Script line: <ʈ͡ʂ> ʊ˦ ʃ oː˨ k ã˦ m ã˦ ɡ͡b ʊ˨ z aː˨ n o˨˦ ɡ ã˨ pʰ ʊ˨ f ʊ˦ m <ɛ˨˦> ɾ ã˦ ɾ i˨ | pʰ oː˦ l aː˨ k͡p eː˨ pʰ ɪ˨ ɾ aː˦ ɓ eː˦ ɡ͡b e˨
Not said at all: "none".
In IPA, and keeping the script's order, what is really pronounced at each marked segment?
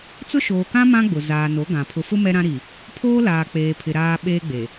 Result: t͡s, ɛ˦

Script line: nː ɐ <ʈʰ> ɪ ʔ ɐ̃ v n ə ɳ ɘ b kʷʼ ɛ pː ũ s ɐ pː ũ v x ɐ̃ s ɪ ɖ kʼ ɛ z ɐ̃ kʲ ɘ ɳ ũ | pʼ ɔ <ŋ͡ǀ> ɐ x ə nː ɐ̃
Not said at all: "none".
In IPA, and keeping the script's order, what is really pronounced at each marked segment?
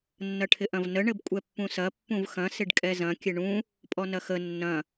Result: ʈʰ, n

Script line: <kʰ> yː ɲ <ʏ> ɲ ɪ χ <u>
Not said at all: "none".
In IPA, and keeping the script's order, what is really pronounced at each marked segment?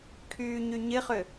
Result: kʰ, y, ʏ

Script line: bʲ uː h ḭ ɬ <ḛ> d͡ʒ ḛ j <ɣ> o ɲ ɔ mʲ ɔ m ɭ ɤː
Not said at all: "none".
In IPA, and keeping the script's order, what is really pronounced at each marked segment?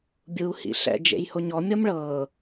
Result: ɛ̰, h

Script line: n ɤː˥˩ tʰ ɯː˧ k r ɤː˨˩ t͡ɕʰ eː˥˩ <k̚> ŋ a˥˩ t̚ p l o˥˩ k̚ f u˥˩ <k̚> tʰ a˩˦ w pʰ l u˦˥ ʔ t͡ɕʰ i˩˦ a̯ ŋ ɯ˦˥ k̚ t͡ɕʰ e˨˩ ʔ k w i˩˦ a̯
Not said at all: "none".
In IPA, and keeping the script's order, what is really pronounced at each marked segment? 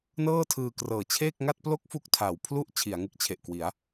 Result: k̚, k̚

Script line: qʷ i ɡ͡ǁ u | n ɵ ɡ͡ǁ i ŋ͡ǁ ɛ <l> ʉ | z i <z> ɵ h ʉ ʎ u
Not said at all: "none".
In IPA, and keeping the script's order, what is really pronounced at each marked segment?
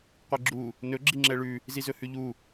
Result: ɭ, z

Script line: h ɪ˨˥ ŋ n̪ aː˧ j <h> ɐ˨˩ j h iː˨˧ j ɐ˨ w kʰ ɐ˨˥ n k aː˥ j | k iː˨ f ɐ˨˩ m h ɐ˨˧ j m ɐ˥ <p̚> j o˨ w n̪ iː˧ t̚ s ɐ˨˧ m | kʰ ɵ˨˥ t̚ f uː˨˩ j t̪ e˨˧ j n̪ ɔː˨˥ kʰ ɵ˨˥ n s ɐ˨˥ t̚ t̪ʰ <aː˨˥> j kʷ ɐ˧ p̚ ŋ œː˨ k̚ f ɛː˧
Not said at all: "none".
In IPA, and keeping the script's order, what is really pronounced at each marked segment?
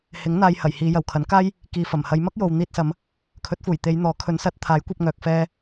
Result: h, k̚, aː˨˥

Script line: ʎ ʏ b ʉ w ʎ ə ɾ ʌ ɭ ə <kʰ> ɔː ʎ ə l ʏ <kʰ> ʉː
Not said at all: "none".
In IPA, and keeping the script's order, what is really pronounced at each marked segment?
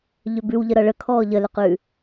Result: kʰ, q

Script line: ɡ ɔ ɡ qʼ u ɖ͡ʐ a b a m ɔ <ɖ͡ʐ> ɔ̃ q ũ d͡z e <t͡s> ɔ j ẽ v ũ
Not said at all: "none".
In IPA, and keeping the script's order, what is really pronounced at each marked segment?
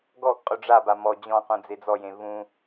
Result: d͡ʑ, d͡z

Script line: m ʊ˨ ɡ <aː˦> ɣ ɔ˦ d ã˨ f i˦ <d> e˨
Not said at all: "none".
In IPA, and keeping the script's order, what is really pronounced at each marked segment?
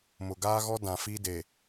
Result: aː˦, d

